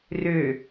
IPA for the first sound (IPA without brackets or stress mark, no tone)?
r